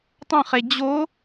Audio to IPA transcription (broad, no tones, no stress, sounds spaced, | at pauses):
tˤ ə̃ χ e d͡ʑ o